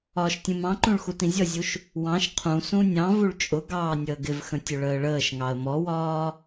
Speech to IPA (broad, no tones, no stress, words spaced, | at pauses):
ɒːʃtʲũmɑ̃ǃũɭ xutĩzʲʌzʲuʃ | wɑ̃ʃ qʰũ sũnʲɑ̃vuɭ t͡ʃʼʊ ɡɑːnʲəːɡɪvxə̃ tʲʊɭəːɭəːʃŋɑə̯ mɔwɒː